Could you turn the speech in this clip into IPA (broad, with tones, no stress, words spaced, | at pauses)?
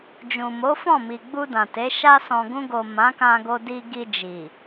d͡ʒũ˨ mo˨˦fɔ̃˦˨mi˨ɡ͡bu˧ dã˨te˨˦ ʃa˧sɔ̃˨ɡũ˧ɡo˨ mã˨˦kã˧ɡo˧ di˧ɡi˧d͡ʒi˨